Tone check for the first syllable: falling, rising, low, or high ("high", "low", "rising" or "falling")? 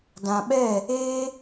low